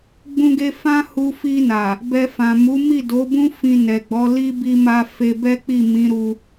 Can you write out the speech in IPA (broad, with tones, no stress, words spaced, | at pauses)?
ɡ͡bũ˦ɡe˦ fã˦hu˧fi˧na˨ | bɛ˧ fã˨mu˨˦ mi˦˨do˨˦bũ˦ fĩ˧nɛ˨ɡ͡bɔ˨˦ li˦bi˧ma˧ fe˧bɛ˦ k͡pi˦˨mĩ˨˦ɾu˧